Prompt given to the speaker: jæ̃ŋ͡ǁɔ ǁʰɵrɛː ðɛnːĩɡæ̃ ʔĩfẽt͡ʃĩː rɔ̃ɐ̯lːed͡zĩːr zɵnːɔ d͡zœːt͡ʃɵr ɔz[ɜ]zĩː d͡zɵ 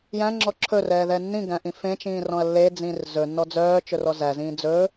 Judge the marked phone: incorrect: æ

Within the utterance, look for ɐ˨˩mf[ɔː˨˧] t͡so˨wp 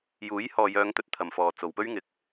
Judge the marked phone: incorrect: ɔː˨˩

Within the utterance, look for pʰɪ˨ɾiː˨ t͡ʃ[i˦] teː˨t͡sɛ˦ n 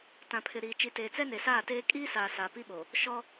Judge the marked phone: incorrect: i˨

